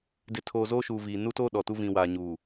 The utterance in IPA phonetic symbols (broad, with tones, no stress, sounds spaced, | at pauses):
d ɪ˨ tʰ oː˨ z oː˦ ʃ uː˨ v iː˨ n u˦ t oː˦ ɗ ɔ˨ t u˦ v ĩ˨ w aː˨ ɲ uː˨